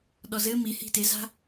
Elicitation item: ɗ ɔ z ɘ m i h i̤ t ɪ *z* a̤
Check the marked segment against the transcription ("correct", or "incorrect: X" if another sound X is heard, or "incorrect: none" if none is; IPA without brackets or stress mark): correct